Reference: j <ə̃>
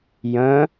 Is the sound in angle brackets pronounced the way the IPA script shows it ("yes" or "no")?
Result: yes